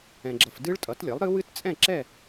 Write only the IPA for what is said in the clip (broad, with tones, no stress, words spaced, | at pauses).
ɛ̃˨ɡ͡ǁʌ˨f dɨ˦˥ɭtʼʌ˩˥tlʲʌ˩˥lˠɾɨ˦˥ wɨ˦˥tt͡sʼɛ̃˥˨ǁɛ˥˨